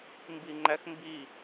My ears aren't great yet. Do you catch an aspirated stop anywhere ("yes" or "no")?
no